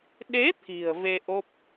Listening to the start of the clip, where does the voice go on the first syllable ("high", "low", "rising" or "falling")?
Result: rising